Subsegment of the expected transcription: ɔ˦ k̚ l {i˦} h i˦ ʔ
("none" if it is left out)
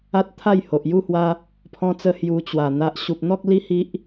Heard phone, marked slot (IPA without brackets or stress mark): i˦